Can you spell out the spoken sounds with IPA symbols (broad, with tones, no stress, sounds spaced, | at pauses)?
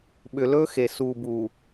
ɓ ʏ˨ l ɵː˦ x e˨ s uː˨ b u˨